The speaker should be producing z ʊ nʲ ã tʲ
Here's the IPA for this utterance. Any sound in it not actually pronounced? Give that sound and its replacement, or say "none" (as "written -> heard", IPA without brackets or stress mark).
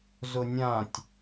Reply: none